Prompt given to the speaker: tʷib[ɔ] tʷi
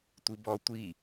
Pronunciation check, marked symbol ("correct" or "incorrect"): correct